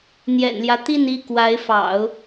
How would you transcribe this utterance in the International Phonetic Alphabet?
n̪ j ɛ̰˨˩ n l j ä˦ t̪ i˥˧ n i˥˩ k w a˧˥ ɪ̯ f ɑ̰˨˩˦ ʊ̯

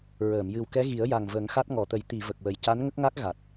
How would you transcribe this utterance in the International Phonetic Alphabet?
ɹ əː˨˩˨ m j ɨ˨˩ w k ɛ˧˥ ɣ i˨˩˦ ə̯ j a˨˩ ŋ v ə˨˩˦ ŋ x a˦˥ t̚ ŋ ɔ˨˩˨ t̪ ə˨˩˦ j t̪ i˨˩˨ v ə˨˩ k̚ w ə˨˩ j c a˧˥ n ŋ ə˦˥ k̚ ŋ a˦˥ k̚ ɣ a˨˩ t̚

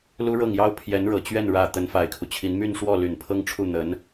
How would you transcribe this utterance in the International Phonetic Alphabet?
l u˥ ɻ ɤ˥˩ ŋ j ɑ˥ ʊ̯ pʰ j ɛ˧˥ n ɻ ɤ˨˩ t͡ɕ ɥ ɛ˥˩ n ɻ ä˨˩ t̪ ə˧˥ n f a˨˩ ɪ̯ kʰ u˦ t͡ɕʰ i˧˥ n m y˥˧ n ʂ w ɔ˥˩ l y˨˩ n pʰ ɤ˥˧ ŋ ʈ͡ʂʰ u˥˩ n̪ ə˧˥ n

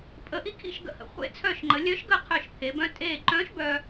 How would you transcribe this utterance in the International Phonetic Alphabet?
pʼ ə˩˧ ʔ i˧ kʰ ḭ˥˩ ʃ ɡ ə̰˧˩ h ə̰˩˧ χʷ ḛ˧˩ t͡sʰ œ˧˩ ʃ ŋ͡ǃ ə˩˧ lʲ œ˧˥ ʃ ɡ ə˥˩ qʰ œ˧˩ ʃ pʰ e˩˧ b œ̃˧˥ tʼ eː˧˩ ǃ œ̃ː˧˥ ʃ b œ˧

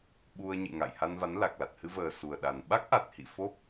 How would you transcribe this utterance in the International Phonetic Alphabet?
ɓ u˧ ə̯ ɲ ɨ̰˧˨ ŋ a̰˧˨ j h a˧ n v a˨˦ n l a˨˩ k̚ l a˨˩ t̚ h ɨ˧ v əː˨˩ s u˨˩ ə̯ ɗ a˨˩ n ɓ a˦˥ k̚ ʔ a˨˩ t̚ h ḭ˧˨ f o˦˥ p̚

